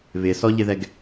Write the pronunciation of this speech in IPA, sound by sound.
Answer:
βɪsɔʎɪðɛɡ

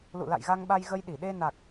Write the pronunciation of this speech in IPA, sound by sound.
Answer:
lṵ˧˨la̰˧˨j ɣa˧ŋɓa˧j ɣə˧jɗi˧˩ɗe˧ na˨˩k̚

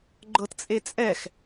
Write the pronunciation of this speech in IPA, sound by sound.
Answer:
ɡ͡ǃɤtt͡sʼet͡sʼɛx

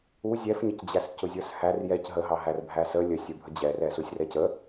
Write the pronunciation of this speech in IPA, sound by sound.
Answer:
u zʲɛfɲəcd͡ʑæs cʊzʲə˞shær jɛc ɦəɦɑ ɦærbʱæsə lʲəsʲə˞bʱə d͡ʑɛrɛ susʲrɛcə

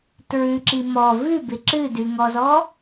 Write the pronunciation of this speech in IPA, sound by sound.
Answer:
tɹʉǁi mɔ vʉbɪ ǁɨdʉŋɔzɔ

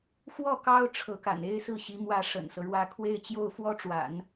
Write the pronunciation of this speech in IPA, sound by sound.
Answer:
xwɔ˥˩kɑ˥ʊ̯ ʈ͡ʂʰɤ˧˥ka̰˨˩n e˥ɪ̯sɹ̩˥˩ɕi˧˥ mwä˥˩ ʂə̰˨˩nsɤ˦ɻwä˥˧ kʰwe˥˧ɪ̯t͡ɕjo˥˩ʊ̯ fwɔ˥ʈ͡ʂwa̰˨˩˦n

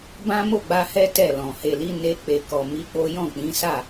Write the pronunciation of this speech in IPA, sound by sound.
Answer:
bã˦mo˦˨ɡ͡ba˧hɛ˦ tɛ˦˨lɔ̃˨ he˨li˨˦ ne˧ k͡pe˨kɔ˨ mi˧k͡po˦ jɔ̃˦˨k͡pĩ˨˦sa˦˨

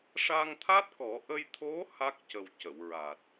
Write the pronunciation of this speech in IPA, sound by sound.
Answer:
ʂa˧ŋt̪ʰa˦˥t̚kɔ˨˩˦ ʔə˧jt̪ʰo˧˥ ha˦˥k̚cə˨˩w cə˨˩˨wɹa˨˩t̚

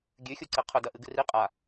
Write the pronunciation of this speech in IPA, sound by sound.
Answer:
ɡʲʉxʲu ǀeqʰɵdɐ ʔɨɡɨri qʼa

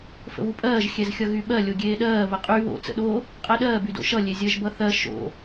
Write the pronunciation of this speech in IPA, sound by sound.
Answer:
fə̰βupʼɜːʒ xʲɛzxʲʌɣyɓɜ lʲoɡʲeːɗɜː βəqʼy βo̰ t͡sə̰ɗo | qʼɛɗɜː bydo̰ʃʌ lʲezʲɜʒbʌθɜ ʃo̰

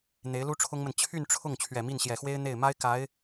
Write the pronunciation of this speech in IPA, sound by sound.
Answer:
n̪e˧˥ɪ̯lu˥ʈ͡ʂʰʊ˥ŋmə˨n t͡ɕʰy˥˧nʈ͡ʂʰʊ˥˩ŋ t͡ɕʰɥɛ˨˩mi˥˩nɕjɛ˨˩xwe˥ɪ̯ n̪e˥˩ɪ̯ ma˥ɪ̯ ka˧˥ɪ̯

